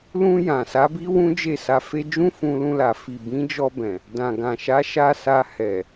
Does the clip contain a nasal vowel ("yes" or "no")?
yes